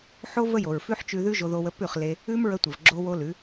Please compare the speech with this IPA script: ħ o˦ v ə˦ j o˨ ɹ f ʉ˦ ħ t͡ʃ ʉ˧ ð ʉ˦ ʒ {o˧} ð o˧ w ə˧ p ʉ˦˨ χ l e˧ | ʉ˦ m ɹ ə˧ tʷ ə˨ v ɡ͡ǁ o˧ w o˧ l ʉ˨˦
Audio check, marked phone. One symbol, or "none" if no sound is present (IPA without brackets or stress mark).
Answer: o˧